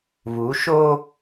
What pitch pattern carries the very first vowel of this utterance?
rising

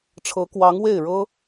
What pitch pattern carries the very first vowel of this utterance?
rising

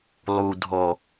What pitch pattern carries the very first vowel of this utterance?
low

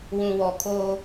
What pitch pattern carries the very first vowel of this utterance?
low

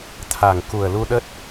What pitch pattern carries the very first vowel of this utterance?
low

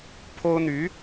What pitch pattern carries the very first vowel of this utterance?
high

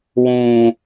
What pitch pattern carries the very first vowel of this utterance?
low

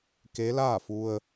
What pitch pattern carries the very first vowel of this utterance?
rising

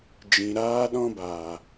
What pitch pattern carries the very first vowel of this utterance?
low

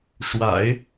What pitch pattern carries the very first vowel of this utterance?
low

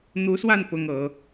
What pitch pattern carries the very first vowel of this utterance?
rising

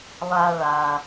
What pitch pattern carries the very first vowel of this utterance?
low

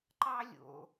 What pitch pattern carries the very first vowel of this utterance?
high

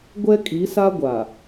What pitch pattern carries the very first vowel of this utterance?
high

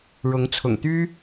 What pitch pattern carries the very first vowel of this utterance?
rising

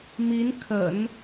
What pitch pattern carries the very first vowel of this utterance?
rising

